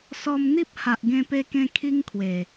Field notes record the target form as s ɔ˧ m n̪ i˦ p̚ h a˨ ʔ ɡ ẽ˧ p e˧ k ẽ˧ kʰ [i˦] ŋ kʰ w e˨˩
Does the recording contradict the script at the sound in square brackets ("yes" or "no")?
no